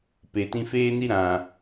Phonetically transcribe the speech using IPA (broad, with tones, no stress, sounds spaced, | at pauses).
p e˨ t ĩ˧ f eː˦ n i˦ ɾ ã˨